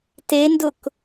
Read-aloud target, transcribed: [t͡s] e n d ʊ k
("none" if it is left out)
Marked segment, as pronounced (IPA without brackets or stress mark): t